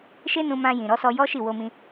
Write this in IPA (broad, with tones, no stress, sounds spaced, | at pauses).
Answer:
ʃ e˦ n ũ˧ m ã˧ j ĩ˨ ɾ ɔ˨˦ s ɔ˧ j ɔ˦ ʃ i˦˨ w o˧ m ĩ˧